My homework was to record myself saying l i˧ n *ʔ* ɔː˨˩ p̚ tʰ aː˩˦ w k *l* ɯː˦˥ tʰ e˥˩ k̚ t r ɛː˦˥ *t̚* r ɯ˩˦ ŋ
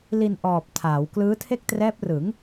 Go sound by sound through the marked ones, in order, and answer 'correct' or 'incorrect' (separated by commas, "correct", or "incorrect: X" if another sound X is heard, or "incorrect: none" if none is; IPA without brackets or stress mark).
correct, correct, incorrect: p̚